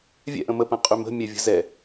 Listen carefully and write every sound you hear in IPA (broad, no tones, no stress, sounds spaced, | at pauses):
vʲ ɛ̰ ʔ ə̃ m ə p ə̃ qʼ y m ə̤ mʲ ɛ vʲ ə̤ z ɛ